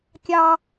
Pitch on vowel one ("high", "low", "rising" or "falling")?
high